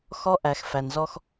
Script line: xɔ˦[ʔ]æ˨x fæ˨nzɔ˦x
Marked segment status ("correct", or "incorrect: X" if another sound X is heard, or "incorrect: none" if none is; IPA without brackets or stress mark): correct